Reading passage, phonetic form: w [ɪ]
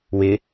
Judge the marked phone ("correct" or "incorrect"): correct